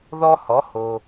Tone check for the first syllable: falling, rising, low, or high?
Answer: high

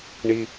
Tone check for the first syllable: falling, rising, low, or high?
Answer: low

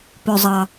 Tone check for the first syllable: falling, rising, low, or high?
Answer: low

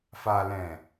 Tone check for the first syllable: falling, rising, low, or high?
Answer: low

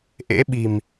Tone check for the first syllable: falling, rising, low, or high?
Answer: rising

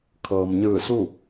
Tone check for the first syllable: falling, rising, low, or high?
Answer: low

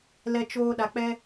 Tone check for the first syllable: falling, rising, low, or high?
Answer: high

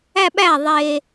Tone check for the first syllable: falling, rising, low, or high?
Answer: falling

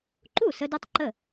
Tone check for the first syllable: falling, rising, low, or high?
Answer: falling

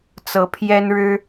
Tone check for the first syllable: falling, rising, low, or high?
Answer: rising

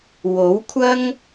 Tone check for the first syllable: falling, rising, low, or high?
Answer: rising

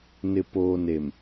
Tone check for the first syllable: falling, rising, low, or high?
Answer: low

